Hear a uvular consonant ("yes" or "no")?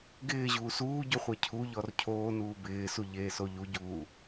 yes